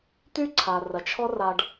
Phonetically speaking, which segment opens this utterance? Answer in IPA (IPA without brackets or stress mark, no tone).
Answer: t̪